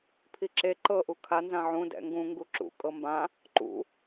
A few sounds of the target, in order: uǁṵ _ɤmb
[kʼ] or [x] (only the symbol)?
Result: kʼ